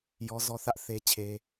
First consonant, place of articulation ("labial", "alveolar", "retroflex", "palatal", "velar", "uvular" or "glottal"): palatal